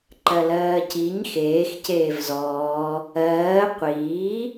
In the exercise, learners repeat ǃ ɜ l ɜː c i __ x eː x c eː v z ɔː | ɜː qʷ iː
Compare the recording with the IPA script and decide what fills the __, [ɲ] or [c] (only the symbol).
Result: ɲ